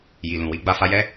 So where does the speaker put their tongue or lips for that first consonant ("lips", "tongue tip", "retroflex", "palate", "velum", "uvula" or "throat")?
palate